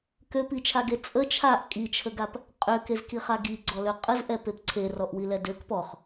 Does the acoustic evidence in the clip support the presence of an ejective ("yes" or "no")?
yes